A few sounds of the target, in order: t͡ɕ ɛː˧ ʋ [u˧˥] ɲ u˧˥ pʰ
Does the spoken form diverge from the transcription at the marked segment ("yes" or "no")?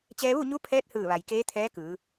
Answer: yes